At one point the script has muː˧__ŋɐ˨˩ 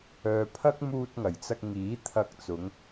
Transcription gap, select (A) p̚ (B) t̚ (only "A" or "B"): B